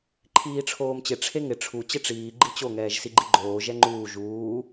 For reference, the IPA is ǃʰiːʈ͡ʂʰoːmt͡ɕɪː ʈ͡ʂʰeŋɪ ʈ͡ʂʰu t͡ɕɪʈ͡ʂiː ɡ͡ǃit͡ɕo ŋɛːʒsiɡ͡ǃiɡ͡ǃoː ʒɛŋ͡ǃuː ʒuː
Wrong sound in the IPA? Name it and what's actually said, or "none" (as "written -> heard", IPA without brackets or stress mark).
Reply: ɪː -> ɪ